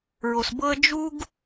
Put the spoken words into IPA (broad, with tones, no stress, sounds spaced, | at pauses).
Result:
ɹ o˧ s b ɤ˥ ə̯ d͡ʒ u˥ ɡ